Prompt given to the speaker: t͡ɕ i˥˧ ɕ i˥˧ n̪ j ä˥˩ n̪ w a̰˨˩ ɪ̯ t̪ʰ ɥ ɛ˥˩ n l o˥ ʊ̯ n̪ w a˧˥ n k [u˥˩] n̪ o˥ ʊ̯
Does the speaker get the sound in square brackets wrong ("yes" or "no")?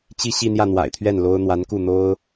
no